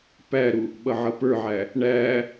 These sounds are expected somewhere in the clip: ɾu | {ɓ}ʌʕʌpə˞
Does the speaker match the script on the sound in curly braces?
yes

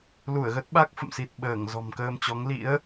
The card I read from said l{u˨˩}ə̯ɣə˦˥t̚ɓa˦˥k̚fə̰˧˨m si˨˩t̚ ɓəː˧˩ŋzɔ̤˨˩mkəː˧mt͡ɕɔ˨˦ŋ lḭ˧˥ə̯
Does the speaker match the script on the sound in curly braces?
no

